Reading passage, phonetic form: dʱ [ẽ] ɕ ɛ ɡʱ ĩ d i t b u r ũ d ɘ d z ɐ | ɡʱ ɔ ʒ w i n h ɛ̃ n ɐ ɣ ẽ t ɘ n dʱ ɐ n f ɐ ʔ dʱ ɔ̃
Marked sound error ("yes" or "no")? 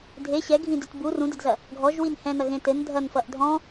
yes